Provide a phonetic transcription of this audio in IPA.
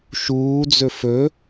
ʃ uː d͡z ɵ f ɵ

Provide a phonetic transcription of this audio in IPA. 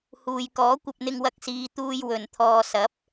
h uː˨ j k ɔː˨˥ kʷ ɐ˧ p̚ n̪ ɪ˧ ŋ w ɐ˧ k̚ s iː˨˧ t̪ uː˧ j w ɵ˨ n t̪ʰ ɔː˧ s ɐ˨˥ p̚

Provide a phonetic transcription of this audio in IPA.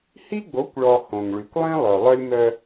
h i˦ ɡ͡b o˨˦ kʷ ɭ ɔ˨ h õ˨ ŋ ɭ y˨ kʷ lˠ ĩ˦ lˠ œ˨ lˠ œ˦ lʲ m œ˦

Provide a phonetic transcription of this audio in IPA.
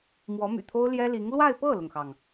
m w ɔ˧˥ m y̰˨˩ t̪ʰ o˥ ʊ̯ l j ɛ˥ l i˧˥ ŋ l w a˥˧ ɪ̯ p ɤ˥˩ l ʊ˩ ŋ x ɑ˩ ŋ

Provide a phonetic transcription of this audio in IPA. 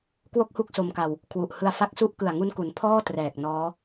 k w o˥˩ k̚ h u˥˩ k̚ s o˧ m k a˧ w | kʰ w u˨˩ ʔ h ɯ˧ a̯ f a˦˥ k̚ s u˦˥ ʔ k ɯ˨˩ a̯ ŋ u˧ n k u˩˦ n pʰ ɔː˥˩ t r ɛː˨˩ k̚ n ɔː˦˥

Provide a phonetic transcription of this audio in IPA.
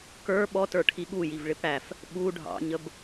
k ə˞ ɓ ɔ t ə˞ ʈʰ i ɠ u j i v ɭ ɪ p ɽ æ f | ɓ u ɖʱ ɑ̰ ɲ ə b

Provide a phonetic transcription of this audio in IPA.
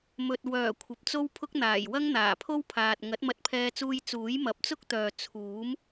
m ɵ˨ t̚ w œː˨˩ kʷʰ ɐ˨ p̚ t͡s o˥ w pʰ ʊ˥ k̚ n̪ aː˨˩ j w ɐ˥ ŋ n̪ aː˨˩ pʰ o˥ w pʰ aː˨ t̚ ŋ ɐ˨˥ t̚ m ɐ˧ t̚ pʰ ɛː˧ t͡s uː˧ j t͡s uː˨˥ j m ɐ˨˥ p̚ t͡s ʊ˥ k̚ t̪ œː˨ t͡sʰ uː˨˥ m

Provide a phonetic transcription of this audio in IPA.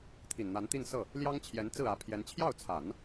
t̪ʰ i˨˩ n n̪ a˧˥ n t̪ i˥˧ n s ɤ˥˩ | l j ɑ˥ ŋ t͡ɕʰ j ɛ˧˥ n t͡s ɹ̩˥˩ ä˧˥ pʰ j ɛ˧˥ n t͡ɕʰ j ɑ˥˩ ʊ̯ t͡sʰ a˨˩˦ n

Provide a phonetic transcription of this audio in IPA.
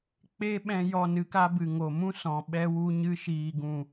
k͡p e˦ ɓ ɛ̃˧ j ɔ˦˨ n ɨ˧ k a˦ b ɨ˨ ŋ o˨ m ũ˦ s ɔ̃˨ ɓ ɛ˦ w u˦ ɲ ɨ˧ ʃ iː˨ ɡ ũ˨

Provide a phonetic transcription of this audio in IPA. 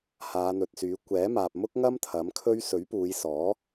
h aː˨˧ n̪ ɵ˨ t̚ s yː˨˥ kʷ ɛː˨˥ m aː˨ p̚ m ʊ˥ k̚ ŋ ɐ˥ m t̪ʰ ɐ˨˥ m kʰ ɵ˥ ɥ s ɵ˨˥ ɥ p uː˨˧ j s ɔː˨˥

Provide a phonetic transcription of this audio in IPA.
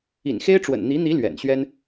ḭ˨˩ n x e˥ ɪ̯ ʈ͡ʂ w ə̰˨˩ n n̪ i˧˥ n̪ i˧˥ l ɥ ɛ̰˨˩ n ɕ ɥ ɛ˥ n

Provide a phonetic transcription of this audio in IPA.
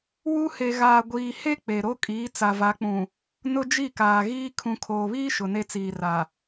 w u˦ h e˨ ɣ aː˨ ɡʷ iː˨ h e˦ k͡p e˨ ɾ o˦ kʼ iː˨˦ t͡s a˨ v a˨˦ k͡p ũ˨ | n ʊ˦ d͡ʒ i˦˨ k aː˨ ɣ iː˦ kʰ ũ˨ kʰ oː˨ β iː˦ ʃ ʊ˨ n e˦ t͡s iː˨ r a˨

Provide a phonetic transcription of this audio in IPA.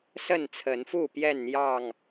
s ə˥˨ n t͡sʰ ə˨˦ n f u˥˨ p j ɛ˥˨ n n̪ j ɑ˥˨ ŋ

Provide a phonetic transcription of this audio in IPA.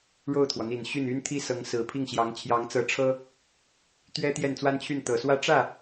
ɻ o˥˩ ʊ̯ t̪ʰ w ɔ˩ n̪ i˨˩ n ɕ y˥˩ n y˥ n t̪ʰ i˥ s ɤ˧˥ ŋ s ɹ̩˨˩ pʰ i˥˩ ŋ ɕ j ɑ˧˥ ŋ t͡ɕʰ j ɑ˧˥ ŋ t͡s ɤ˧˥ ʈ͡ʂʰ ɤ˥ | t̪ ɥ ɛ˥ t̪ j ɛ˥˩ n t͡s w a˥ n t͡ɕʰ y˥˩ n t̪ ɤ˨˩ s w ä˥ ʈ͡ʂ ä˥˩

